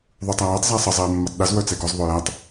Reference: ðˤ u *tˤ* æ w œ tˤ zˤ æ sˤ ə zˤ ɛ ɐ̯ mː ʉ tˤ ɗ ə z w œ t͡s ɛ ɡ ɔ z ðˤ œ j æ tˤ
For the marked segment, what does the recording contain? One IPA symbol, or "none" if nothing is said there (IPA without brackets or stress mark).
tˤ